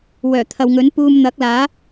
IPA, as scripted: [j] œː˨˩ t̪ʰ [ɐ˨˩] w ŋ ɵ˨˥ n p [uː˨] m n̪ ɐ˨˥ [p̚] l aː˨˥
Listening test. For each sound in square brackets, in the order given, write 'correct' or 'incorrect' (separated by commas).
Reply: incorrect, incorrect, incorrect, incorrect